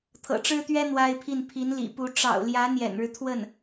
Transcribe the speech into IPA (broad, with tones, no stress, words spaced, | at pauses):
t̪ʰɤ̰˨˩ʈ͡ʂɻ̩˥t̪ɥɛ˥ n̪wa˥ɪ̯pʰi˥˩n pʰi˧˥nlḭ˨˩pu˧˥ ʈ͡ʂɑ̰˨˩ʊ̯ljä˧˥ n̪jɛ̰˨˩nɻɻ̩˦ t̪ʰwə˥˩n